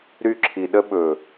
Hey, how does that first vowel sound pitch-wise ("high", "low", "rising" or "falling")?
high